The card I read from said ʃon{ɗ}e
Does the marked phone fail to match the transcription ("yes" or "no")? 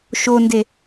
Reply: yes